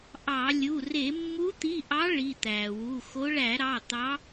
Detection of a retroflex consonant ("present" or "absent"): present